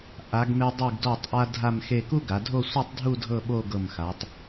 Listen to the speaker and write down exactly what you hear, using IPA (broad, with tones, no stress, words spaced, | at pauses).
ʔa˩˧ɡme˧ dˤɨ˧˩ɡdɔ˧˩tˤʔa˧ dʱa˥˧mxe˥˧ ku˥ɡa˩˧ dʱo˥˧sʷɨ˥˧tˤdʱu˥˧ dʱɤ˥˧ɓo˥˧ɡɤ˧˩mxa˩˧tˤ